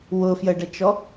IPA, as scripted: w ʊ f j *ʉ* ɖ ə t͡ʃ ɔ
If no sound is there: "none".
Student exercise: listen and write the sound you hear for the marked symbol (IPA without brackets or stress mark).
ə